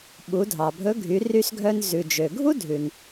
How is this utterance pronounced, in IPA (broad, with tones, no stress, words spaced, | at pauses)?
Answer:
ɓu˩˧dʱɑ˩bʱɵ˧˥ɡʱy˩˧ ry˧sɡʱœ˧n zʉ˩d͡ʒø˩ɡʱu˥dʱʉ˩n